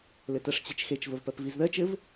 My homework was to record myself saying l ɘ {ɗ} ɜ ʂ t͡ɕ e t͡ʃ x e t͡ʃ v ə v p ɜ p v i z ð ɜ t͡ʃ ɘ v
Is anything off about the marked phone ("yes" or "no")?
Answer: yes